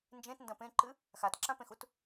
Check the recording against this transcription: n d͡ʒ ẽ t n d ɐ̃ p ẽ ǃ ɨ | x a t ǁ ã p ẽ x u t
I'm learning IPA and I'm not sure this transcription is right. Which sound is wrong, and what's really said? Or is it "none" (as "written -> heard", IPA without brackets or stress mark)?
none